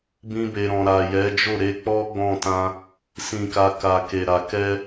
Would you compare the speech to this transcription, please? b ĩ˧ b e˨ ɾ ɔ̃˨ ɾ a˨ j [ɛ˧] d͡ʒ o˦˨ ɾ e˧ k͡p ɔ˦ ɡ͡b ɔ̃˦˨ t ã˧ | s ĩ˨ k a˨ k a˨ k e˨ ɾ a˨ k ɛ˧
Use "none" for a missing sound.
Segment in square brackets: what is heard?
ɛ˨˦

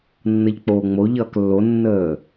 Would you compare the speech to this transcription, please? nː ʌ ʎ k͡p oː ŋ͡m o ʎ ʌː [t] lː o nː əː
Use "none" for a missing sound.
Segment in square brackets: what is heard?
k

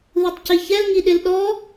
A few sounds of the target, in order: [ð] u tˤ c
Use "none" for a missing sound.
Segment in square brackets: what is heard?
ð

